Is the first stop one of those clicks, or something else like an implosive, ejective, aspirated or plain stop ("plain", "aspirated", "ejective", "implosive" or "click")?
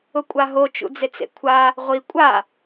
ejective